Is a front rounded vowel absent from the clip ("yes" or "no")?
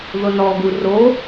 yes